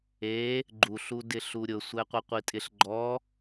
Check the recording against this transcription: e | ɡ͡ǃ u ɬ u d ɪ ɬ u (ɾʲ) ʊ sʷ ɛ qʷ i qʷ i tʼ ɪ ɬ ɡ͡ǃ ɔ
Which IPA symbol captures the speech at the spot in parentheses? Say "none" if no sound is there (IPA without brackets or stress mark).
ɾʲ